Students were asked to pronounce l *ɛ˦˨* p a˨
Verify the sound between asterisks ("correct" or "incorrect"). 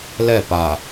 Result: correct